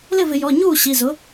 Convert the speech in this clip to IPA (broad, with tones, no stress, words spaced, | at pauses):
lɪ˥˩vɪ˧˩˧ jɔ˩˧˩ɲuː˥˩ ɕi˩˧˩zʊ˩˥